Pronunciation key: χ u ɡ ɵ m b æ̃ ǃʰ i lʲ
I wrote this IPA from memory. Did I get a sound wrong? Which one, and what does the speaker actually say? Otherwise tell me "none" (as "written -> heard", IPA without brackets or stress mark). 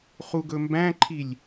none